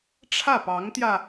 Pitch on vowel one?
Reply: falling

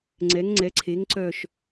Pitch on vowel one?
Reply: rising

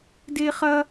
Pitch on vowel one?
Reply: high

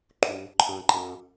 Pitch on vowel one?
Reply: low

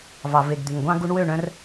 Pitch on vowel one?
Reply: low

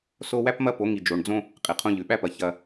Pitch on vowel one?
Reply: high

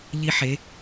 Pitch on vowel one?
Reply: high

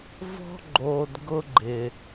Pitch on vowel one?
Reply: high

